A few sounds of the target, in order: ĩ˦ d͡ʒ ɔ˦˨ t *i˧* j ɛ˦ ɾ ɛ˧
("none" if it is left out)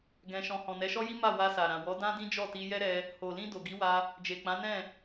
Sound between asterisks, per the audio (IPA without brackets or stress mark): i˧